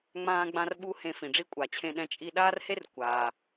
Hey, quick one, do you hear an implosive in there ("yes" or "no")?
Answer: yes